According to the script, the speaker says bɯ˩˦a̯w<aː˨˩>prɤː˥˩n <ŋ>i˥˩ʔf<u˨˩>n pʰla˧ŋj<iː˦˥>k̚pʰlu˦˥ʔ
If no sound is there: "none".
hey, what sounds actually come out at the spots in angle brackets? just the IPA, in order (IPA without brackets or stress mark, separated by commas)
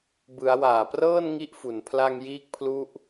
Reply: aː˨˩, ŋ, u˨˩, iː˦˥